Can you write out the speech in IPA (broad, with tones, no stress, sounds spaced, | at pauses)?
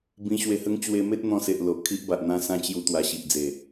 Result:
b ĩ˧ ɕ w e˧ h ə˦ ŋ t͡ɕ w e˧ m e˦ t̚ n̪ ɔ̃˧ s e˨ ʔ l o˨ ʔ kʰ i˦ ʔ b a˨ ʔ n̪ ã˦ s ã˦ t͡ɕ j u˧ t̪ w a˨˩ ɕ i˨ ʔ d͡z e˨˩